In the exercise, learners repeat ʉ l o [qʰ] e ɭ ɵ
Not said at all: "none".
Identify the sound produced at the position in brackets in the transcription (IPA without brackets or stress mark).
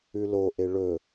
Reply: ʔ